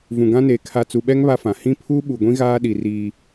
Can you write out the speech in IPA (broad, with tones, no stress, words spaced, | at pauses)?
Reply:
vũ˨ɡã˦neː˨ kʰa˨t͡su˨ɓɛ˦ŋ βa˦fã˨ hĩ˦ pʰuː˦ ɓu˨ɡʷĩ˦ ɣaː˦ ɗi˨ riː˦